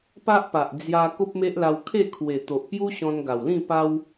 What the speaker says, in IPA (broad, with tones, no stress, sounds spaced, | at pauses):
p a˦ ʔ p a˨ ʔ d͡z j a˧ k o˦ p̚ m e˦ ʔ l a˧ w kʰ e˥˧ kʰ w e˨˩ t̪ o˨ ʔ p j u˦ ɕ ɔ̃˧ n ɡ a˨˩ w l ĩ˥˧ p a˦ w